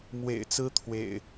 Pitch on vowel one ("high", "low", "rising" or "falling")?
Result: low